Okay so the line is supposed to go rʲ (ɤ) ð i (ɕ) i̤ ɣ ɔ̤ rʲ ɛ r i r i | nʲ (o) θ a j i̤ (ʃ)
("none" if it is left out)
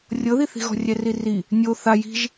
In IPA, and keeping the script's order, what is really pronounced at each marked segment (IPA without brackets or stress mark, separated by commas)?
ɤ, θ, o, ʒ